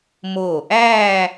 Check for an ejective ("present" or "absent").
absent